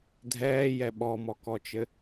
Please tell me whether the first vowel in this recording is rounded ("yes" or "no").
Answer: no